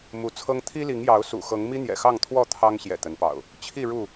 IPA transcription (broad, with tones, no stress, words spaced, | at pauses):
mu˨˦t͡sʰɤ˦ŋ t̪ʰi˦li˨˦ŋjɑ˨˦ʊ̯ sṵ˨˩xɤ˨˦ŋ mi˦n̪jɛ̰˨˩xɑ˥˨ŋt̪ʰwɔ˥˨ t̪ʰɑ˦ŋ ɕjɛ̰˨˩t̪ə˨˦npɑ̰˨˩ʊ̯ | t͡ɕʰi˥˨ ɻu˥˨